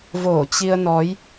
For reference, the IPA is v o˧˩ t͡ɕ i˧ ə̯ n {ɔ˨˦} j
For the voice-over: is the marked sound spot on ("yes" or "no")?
yes